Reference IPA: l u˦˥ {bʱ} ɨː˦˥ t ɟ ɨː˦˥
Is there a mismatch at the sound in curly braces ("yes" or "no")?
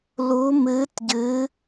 yes